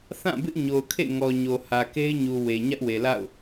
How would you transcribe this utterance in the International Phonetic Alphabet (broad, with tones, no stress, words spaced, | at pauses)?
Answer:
θã˦˨bɪ˦ʔɲo˨ʊ̯kʰḛ˦˨ ŋɔ˨ɲo˨ hä˨ke˦ɪ̯ɲu˨ we˨ ɲä˦ʔwe˨la̰˦˨ʊ̯